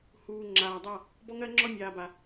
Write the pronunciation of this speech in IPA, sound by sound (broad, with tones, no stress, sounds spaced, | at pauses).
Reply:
h uː˨ ŋ͡ǁ aː˨ dˤ a˦˨ | b ɔ˦ ŋ ɜ˦ ŋ͡ǁ ɔ˦ mʲ aː˨ b a˨